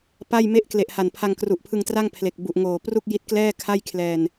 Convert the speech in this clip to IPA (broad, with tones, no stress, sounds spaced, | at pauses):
p a˥˩ j m e˦˥ ʔ k l e˨˩ ʔ h a˨˩ n pʰ a˧ ŋ k r u˨˩ ʔ pʰ ɯ˧ ŋ t r a˥˩ ŋ pʰ l e˨˩ k̚ b u˨˩ ʔ ŋ oː˨˩ p r u˥˩ k̚ j i˦˥ t̚ k l ɛː˥˩ kʰ a˥˩ j kʰ l ɛː˧ n